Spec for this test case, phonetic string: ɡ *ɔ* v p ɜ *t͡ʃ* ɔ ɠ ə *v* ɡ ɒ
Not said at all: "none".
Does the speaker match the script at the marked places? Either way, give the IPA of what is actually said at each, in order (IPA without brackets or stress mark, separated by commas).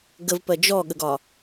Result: ə, d͡ʒ, none